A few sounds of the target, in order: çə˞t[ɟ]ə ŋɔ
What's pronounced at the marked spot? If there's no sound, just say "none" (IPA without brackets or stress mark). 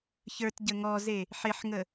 ɟ